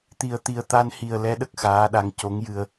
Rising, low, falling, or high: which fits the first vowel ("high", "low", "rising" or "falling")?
low